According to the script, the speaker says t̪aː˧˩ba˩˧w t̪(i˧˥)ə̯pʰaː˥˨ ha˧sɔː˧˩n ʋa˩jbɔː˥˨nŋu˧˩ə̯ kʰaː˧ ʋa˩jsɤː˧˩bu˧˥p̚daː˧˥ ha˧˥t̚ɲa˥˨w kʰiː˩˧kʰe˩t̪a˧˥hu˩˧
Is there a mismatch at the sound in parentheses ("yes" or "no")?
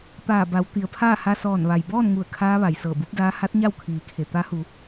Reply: yes